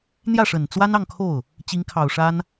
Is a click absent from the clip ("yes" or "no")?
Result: yes